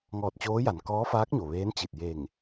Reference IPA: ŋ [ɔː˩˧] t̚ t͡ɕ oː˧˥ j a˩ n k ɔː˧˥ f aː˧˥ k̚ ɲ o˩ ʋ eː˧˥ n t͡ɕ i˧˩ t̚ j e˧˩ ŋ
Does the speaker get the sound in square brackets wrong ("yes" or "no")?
yes